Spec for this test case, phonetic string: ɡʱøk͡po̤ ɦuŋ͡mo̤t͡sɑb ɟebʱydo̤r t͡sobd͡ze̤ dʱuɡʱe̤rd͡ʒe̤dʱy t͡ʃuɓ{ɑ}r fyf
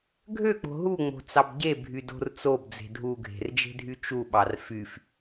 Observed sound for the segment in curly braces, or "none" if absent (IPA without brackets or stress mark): ɑ